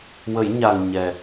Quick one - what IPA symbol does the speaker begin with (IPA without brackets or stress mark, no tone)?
w